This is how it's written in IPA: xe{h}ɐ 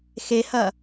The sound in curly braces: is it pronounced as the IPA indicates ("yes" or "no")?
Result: yes